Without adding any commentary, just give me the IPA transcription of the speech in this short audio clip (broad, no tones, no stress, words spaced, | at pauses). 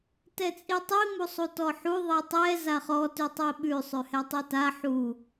tɛt͡sʼitˤi musˤutɔħu ðˤitˤɛ zaχɔ tʉtˤiɓʉ sˤʉhɛtˤita ħu